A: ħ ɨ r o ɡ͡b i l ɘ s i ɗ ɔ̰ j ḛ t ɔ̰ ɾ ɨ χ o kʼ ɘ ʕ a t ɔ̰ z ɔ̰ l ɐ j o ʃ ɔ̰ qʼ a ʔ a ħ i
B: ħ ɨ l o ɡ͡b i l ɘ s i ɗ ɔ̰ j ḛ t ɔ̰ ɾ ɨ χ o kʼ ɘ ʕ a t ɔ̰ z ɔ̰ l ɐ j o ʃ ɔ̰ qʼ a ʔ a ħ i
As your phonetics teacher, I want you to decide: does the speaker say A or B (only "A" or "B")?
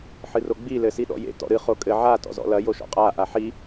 A